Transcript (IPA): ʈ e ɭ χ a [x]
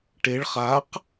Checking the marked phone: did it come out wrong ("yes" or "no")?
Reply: yes